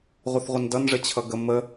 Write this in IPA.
ʁʷ ə θ ʁʷ ə n d ʌ n ʐ ə t͡ɕʰ ʌ ɡ ə m ə

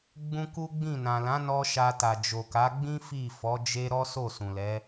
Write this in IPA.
ɡ͡b ũ˦ k u˦ ɡ͡b ĩ˦˨ n ã˨ l ã˨˦ n ɔ˧ ʃ a˧ t a˨ d͡ʒ o˨ k a˨˦ ɡ͡b ĩ˦ f i˦˨ f ɔ˨˦ d͡ʒ e˦ ɾ ɔ˦ s o˦˨ s ũ˨ l ɛ˨˦

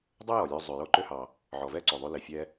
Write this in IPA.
dˤ ʉ˥ j ɔ˩ lʲ ø˧ zˤ ʉ˩ j o˧ ǃ ø˧ h ɑ˩ | ʕ ɔ˩ v ɛ˥ ǀ o˩ ðˤ ʉ˧ l e˩ fʲ ɛ˧

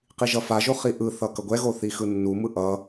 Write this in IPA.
q i ʒ ʌ f a ʒ o χ i ʔ ɯ θ ʌ k ʌ ɡʷ ɛ ɣ o θ i x ɯ nː u m ɯ ʔ ʌ

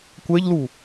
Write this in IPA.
kʷ ɛ ʎ l u

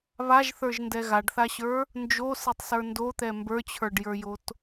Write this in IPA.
β a ʒ θ ə˞ ʒ n d ɛ ɣ a ɖ θ a ɕ ə˞ | n d͡ʒ o s e tˤ s ə˞ n d o t̪ ɛ m b ə˞ t͡ɕʰ ə˞ ɖ j ə˞ j o t

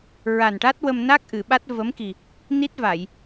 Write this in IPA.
ɹ a˨˩ n ʈ a˦˥ t̚ w ə˧ m n a˦˥ k̚ ʔ ɨ˨˩˨ ɓ a˦˥ t̚ v ə˧˥ m k i˨˩ | n i˦˥ t̚ v a˨˩˨ j

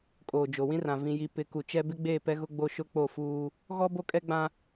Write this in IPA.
kʼ oː˨ d͡ʒ o˨ w ĩ˦ r ã˨ v ĩ˨ j i˨ p ɪ˨˦ k u˨ t͡ʃ ɛ˦ b ɪ˦ ɡ͡b eː˦˨ p ɛ˦ ɣ ʊ˦ ɡ͡b o˦ ʃ ʊ˦ k͡p o˦˨ f uː˦ | ɣ ɔ˦ b o˦ kʼ ɛ˦ ɡ͡b ã˦

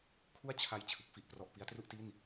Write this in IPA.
kʰ u˥˩ a̯ t͡ɕʰ a˧ j t͡ɕʰ ɯ˦˥ k̚ f i˥˩ ʔ p r ɔ˥˩ ʔ p i˦˥ a̯ t r u˥˩ ʔ t i˥˩ n

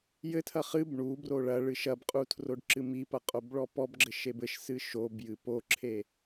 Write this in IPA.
j ɘ tʰ ɐ χ ɨ b ɳ u b r o ɭ ɐ ɭ ɨ ʃ ɐ b qʼ u tʰ r o ɖ ǁ ɨ m i p ɐ qʼ o b ɭ ɔ p ɔ b ɡ͡ǁ ɘ ʃ e b ɘ ʃ s ɨ ʃ o b j ɨ p o ǁʰ e

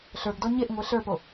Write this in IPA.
ɬ ə˞ ɡ d ɔ ɲ e ʔ ŋʷ e ɬ ə˞ p o

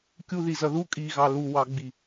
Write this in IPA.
kʲ u ð i z ʌ ð u kʼ i ɣ ɑ l u w ɑ ɡ͡b i

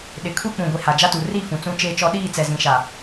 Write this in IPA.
ɗ ɪ˨ kʰ u˦ k͡p ũ˨ ɡʷ i˨ h a˨ d͡ʒ a˦ t u˨ r i˦˨ f ũ˨ t͡s ũ˦ t͡ʃ eː˦ t͡ʃ ɔ˦ ɗ iː˦˨ t͡s ɛ˨ z ĩ˨ ʃ a˨

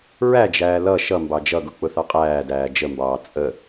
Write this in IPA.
ɹ æ d͡ʒ æː l ʌ ʃ ʌ m b ɑ d͡ʒ ʌ ɡ ʊ k͡p ʊ θ ɑ qʼ æː d æː d͡ʒ ə m b ɑː t͡sʼ ə

